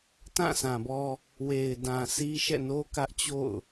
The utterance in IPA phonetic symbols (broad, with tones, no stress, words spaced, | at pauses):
tã˦˨sʰã˨bɔ˦ | we˨ɪ̯dã˨ sʰi˦ʃɛ̰˦˨ no˦kä˦ʔt͡ɕo̰˦˨ʊ̯